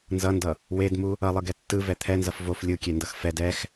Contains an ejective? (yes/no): no